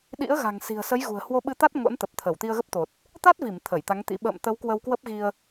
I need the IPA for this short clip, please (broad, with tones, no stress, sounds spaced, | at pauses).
ɗ ḭ˧˥ ə̯ ɣ a̤˨˩ ŋ s i̤˨˩ ə̯ s ə˨˦ j ɣ ṳ˨˩ ə̯ h w o˧ ɓ ɨ˧ t̪ a˦˥ t̚ ŋ o̰˧˥ n t̪ ə˨˩ p̚ t̪ʰ ə˧˩ w t̪ i˧ ə̯ ɣ ə˦˥ p̚ t̪ o˨˩ t̚ | t̪ a˦˥ t̚ v i˧˩ m t̪ʰ ə˧˩ j t̪ a˨˦ ŋ t̪ ḭ˧˥ ɓ ə̰ː˧˨ m t̪ ə˨˦ w k w ə˧ w k w ə˦˥ p̚ ɣ i˧ ə̯